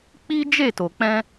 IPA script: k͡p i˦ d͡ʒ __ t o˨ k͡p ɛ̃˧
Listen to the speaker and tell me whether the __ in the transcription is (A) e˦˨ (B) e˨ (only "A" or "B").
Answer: A